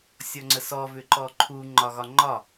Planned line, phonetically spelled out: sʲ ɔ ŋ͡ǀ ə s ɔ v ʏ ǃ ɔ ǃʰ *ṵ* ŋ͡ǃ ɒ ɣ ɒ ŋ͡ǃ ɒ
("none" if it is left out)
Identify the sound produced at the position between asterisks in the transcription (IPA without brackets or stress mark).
u